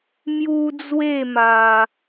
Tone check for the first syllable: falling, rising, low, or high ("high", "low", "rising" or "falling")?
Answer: high